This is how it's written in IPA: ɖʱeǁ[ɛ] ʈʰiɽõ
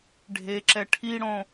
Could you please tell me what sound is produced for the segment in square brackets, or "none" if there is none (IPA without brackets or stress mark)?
ɛ